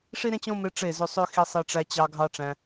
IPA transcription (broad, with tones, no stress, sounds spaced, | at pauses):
ʂ i˦ ɾ ẽ˦ t͡ɕ õ˦ m e˧ ʈ͡ʂ e˦˨ z ø˧ sˤ ø˦ x i˧ sˤ e˧ ʈ͡ʂ æ˧ t͡ɕ ɑ˧ ɡʱ ɑ˦ ʈ͡ʂ æ̃˧